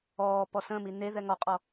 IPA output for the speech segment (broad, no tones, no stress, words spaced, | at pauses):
ɔː pɔsə̃mi ne ðɛŋɔqʼɔ